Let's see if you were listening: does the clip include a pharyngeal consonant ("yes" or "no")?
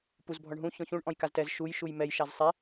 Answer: no